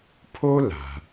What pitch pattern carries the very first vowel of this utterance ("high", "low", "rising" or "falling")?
high